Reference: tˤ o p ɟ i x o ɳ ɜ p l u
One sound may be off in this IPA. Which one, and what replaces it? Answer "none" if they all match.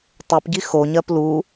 ɳ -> ɲ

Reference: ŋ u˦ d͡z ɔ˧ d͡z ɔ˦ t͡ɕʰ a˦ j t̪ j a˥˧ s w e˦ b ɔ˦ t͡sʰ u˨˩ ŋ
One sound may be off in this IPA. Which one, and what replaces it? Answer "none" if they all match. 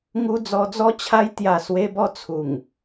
none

